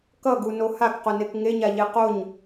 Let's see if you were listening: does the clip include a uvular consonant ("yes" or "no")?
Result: yes